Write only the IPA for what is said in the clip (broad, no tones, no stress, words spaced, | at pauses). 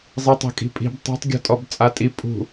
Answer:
zˤitˤe̤kʼi̤pʼi̤b tˤe̤tˤ ɡʲɔ̤tʼɔbt͡sʼatʼi pʼṳ